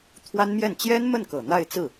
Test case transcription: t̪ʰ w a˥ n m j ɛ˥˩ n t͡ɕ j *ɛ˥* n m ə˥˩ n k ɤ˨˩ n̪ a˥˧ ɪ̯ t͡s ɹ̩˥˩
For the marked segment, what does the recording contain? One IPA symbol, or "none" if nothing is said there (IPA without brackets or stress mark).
ɛ˥